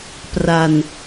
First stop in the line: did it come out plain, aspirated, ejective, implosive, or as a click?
plain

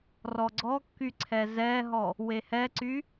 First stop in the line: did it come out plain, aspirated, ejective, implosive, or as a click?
click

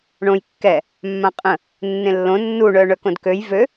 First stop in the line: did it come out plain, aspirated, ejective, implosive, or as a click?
plain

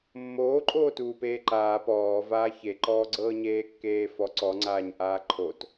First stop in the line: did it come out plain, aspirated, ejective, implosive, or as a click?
click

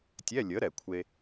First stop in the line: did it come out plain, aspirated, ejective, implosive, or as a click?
plain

